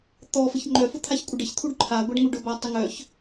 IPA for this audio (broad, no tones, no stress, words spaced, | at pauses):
t̪ɔfəç ŋ͡ǃœfʊ t̪ʰaçkʷʼəɖəç t̪ʰuɖǃʰaɡʷaɖŋu ɖʊba tˤəŋœç